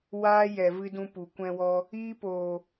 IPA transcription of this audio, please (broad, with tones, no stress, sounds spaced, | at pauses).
w aː˦ j ɛ˨ v ɨ˧ d ũ˧ p u˨ kʷ ɛ̃˧ w ɔ˧ | iː˦ p oː˨